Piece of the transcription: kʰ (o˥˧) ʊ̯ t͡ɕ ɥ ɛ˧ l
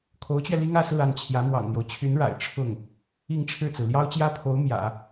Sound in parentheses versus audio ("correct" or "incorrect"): incorrect